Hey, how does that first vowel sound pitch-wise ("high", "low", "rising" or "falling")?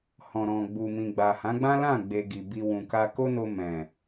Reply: low